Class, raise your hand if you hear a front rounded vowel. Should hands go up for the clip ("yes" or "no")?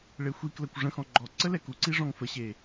no